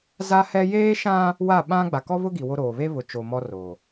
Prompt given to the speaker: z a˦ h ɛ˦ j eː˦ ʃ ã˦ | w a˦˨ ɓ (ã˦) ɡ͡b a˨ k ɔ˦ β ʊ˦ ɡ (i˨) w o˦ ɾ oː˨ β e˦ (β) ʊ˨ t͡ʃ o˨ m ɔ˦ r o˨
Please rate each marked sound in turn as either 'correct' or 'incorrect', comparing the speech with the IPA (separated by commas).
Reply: correct, correct, correct